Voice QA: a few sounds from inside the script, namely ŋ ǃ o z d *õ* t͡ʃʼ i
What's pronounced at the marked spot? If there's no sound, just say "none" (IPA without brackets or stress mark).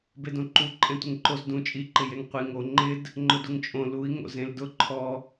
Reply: ũ